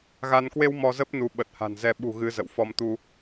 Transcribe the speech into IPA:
ɣ a˧ n k w e˧ w m ɔ˧ z ə˦˥ p̚ n u˨˦ ɓ ə˨˩ t̚ h a̤˨˩ n z ɛ˧ ɓ ṳ˨˩ ɣ ɨ˧ z ə̰˧˨ w f ɔ˧ m t̪ u˧

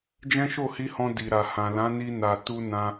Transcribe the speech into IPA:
d͡ʒ ɛ̃˦ ʃ o˦˨ h i˧ h ɔ̃˧ d i˨ ɾ a˨ h ã˨ l ã˨˦ n i˧ n a˨ t u˧ n ã˧

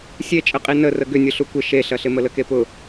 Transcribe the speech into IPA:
sʲ e t͡ʃʼ ə qʼ i n ə r ə ɡ ʏ nʲ ʊ ɬ u kʷ ɪ ʃ e ɬ ɐ ɬ ɪ m ə l ə k e p ʊ

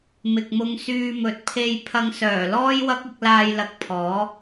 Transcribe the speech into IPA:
m ɪ˨ k̚ m ʊ˧ ŋ s yː˧ m ɵ˨ t̚ pʰ e˧ j pʰ ɐ˧ ŋ s œː˨˩ l ɔː˥ j w ɐ˥ k̚ ɪ˧ k̚ l aː˧ j l ɐ˨˥ k̚ pʰ ɔː˨˥

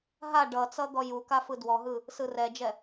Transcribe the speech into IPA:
ɦ a ɖ ʌ t͡s ʌ d̪ ɔ j u k a f ɯ d w ɔ ɦ ɯ | s ɯ r ɛ d͡ʒ ɛ

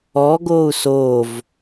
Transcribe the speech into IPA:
ɔː ɡ oː u̯ s oː v

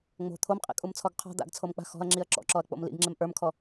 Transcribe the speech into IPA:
ŋ͡m o̤ t̪ʰ o m qʼ ḭ kʼ u m t͡sʰ ɔ ɡ qʰ ɔ̤ d̪ a̰ ɡ t͡sʰ o m k͡p a̤ x ɔ̤ ɐ̯ ŋ͡ǁ i ɐ̯ ǁ ɔ̰ ǁ ɔ ɐ̯ k͡p o̰ m l ḭ ɡ ŋ͡ǁ e m ʔ ə˞ m kʰ ɔ

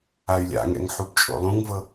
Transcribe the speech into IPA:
a y̯ lʲ a̰ ŋ ɛ̰ ŋ ħ u b t͡ʃʼ o̰ lˠ ũ ŋ v ɤ

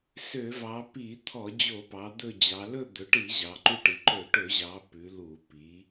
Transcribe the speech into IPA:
s ø˧˩˧ v ɑ˩˧ p i˧˩˧ t̪ʰ ɔ˧˩˧ d͡ʑ o˧˩˧ p ɑ˩˧ d̪ ɵ˦˨ d͡ʑ ɑ˩˧ l ɵ˦˨ d̪ ɵ˩˧ ʈ i˧˩˧ ʑ ɑ˩˧ ǃ ʉ˦˨ ʈ i˩˧ ǃ ɵ˧˩˧ ʈ ɵ˧˩˧ ʑ ɑ˩˧ p ʉ˩˧ l u˧˩˧ p i˩˧

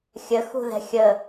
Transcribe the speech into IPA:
xʲ ə x ṳ ð ɛ̤ xʲ ə

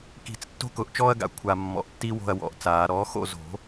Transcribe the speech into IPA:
k i̤˨˩˦ t͡s tː o̤˥ k ʊ˨˩˦ ʔ t͡ʃ ɔː˥ ɐ̯ ɡ a̰˨˩˦ kʷʰ a˨˩ mː ɔ̰˨˩ ʔ tː i˥ w o̤˦˨ ɐ̯ w ɔ̰˨˩˦ ʔ t͡s aː˨˩˦ ɾ ɔ˩˥ x o̰˦˨ z o̤˨˩˦

